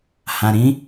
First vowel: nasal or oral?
nasal